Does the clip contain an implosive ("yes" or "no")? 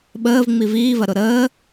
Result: yes